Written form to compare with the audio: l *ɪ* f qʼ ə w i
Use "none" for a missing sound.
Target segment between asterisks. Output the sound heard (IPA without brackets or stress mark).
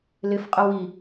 ɪ